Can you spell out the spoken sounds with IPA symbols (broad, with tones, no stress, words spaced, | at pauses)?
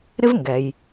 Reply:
ɾɪ˥vŋɡɛ˩j